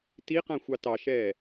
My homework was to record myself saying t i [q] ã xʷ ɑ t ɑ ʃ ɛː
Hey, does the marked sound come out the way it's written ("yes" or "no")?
yes